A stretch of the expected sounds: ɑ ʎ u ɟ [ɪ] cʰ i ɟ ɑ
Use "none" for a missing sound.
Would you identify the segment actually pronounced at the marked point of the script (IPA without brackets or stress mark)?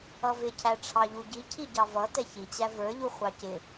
i